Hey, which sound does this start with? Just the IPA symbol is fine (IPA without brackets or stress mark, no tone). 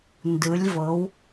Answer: n